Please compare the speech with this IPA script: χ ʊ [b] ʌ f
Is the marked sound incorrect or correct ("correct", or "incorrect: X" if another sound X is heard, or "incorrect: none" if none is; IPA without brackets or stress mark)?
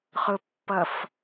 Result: incorrect: pː